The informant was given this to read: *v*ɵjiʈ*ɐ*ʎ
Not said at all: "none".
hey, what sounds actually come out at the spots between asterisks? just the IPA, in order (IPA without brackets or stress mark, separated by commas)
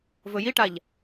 v, a